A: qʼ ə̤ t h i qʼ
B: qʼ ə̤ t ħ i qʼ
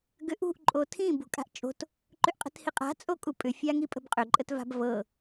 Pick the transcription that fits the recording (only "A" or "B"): A